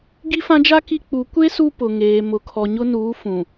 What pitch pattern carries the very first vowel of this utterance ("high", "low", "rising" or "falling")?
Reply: high